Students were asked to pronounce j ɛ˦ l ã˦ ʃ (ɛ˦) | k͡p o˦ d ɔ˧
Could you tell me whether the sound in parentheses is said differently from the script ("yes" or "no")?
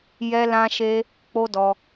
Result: yes